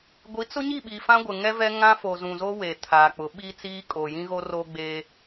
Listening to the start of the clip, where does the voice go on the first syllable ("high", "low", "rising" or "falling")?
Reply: rising